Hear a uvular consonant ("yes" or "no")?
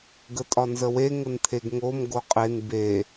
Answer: yes